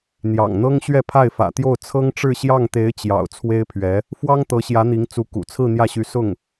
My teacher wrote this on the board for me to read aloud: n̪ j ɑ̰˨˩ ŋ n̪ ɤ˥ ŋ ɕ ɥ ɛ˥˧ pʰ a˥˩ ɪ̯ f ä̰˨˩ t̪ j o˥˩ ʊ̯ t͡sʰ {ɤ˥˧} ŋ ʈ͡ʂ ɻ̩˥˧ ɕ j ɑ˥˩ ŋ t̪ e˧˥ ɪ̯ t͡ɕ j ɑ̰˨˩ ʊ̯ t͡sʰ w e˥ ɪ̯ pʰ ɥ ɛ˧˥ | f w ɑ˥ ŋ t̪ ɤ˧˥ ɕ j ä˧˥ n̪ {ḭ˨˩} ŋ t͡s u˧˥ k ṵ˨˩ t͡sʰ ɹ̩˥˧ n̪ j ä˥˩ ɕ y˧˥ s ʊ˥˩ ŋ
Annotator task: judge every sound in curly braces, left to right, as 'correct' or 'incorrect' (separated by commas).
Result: incorrect, incorrect